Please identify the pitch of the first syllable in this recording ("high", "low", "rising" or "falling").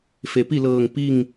low